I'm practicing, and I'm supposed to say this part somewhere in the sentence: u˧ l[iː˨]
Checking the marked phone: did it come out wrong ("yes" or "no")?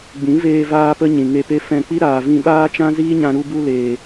yes